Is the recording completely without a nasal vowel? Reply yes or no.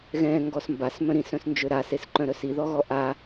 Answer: no